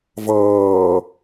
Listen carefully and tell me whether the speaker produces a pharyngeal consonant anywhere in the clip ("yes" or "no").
no